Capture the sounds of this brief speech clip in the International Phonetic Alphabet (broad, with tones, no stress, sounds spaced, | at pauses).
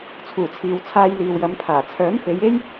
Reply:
t͡sʰ uː˨˩ t͡sʰ iː˨ w t͡sʰ aː˧ j l iː˨ w j ɐ˨˧ m pʰ aː˨˩ t͡sʰ œː˨˥ m f e˨˧ j e˥ j